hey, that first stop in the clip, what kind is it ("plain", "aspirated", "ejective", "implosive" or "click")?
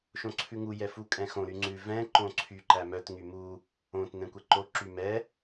click